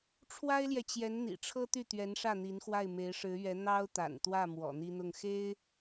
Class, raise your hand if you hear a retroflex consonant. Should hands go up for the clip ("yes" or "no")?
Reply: yes